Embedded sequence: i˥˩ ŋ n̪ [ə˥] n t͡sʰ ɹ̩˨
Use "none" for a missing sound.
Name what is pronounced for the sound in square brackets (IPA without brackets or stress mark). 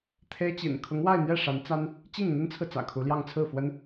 ə˥